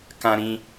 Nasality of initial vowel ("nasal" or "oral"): nasal